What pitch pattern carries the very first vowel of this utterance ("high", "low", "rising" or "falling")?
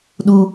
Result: low